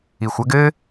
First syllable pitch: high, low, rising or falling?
low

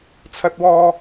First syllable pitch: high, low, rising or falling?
high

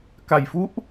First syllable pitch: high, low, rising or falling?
low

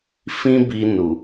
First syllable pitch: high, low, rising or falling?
high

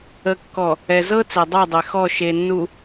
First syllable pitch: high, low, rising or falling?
low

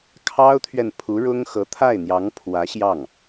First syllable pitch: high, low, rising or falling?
high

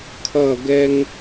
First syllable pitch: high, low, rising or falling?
falling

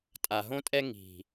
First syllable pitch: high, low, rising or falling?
low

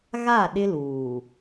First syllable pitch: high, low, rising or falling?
falling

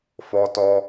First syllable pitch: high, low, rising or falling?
high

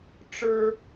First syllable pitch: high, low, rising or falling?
high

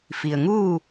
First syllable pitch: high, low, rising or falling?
low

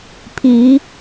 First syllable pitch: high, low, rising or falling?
rising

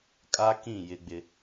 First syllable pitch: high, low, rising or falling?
high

